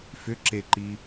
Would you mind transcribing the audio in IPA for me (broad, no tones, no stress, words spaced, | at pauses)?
fʏ ǁeǃi